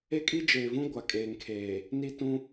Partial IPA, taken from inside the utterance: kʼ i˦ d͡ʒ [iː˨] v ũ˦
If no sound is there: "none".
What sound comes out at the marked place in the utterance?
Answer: eː˨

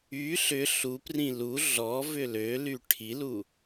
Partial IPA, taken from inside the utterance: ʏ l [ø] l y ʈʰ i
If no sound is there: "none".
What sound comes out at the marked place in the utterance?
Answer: ø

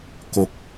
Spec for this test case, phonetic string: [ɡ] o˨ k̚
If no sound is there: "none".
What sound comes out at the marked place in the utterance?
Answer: k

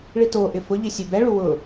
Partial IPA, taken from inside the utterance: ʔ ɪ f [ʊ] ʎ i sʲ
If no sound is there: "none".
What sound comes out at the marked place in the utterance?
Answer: ʊ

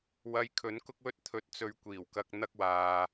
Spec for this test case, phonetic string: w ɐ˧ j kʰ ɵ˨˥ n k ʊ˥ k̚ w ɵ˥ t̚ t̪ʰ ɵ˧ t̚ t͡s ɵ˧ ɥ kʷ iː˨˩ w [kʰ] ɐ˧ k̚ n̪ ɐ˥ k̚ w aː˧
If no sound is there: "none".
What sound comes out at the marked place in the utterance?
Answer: k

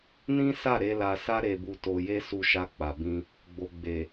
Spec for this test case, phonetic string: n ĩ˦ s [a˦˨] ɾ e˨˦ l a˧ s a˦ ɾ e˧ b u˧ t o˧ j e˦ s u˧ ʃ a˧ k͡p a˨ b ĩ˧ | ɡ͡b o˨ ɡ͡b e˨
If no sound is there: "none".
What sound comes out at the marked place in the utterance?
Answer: a˦˨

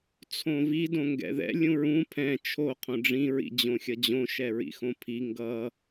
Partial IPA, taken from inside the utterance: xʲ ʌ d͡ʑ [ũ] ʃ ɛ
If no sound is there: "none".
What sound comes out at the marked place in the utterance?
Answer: õ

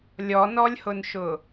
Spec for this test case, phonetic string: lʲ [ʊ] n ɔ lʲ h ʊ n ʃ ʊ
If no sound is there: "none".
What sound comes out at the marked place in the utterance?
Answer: ɔ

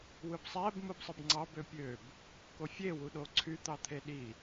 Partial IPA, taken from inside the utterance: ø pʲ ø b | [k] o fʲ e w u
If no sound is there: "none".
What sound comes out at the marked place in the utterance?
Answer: k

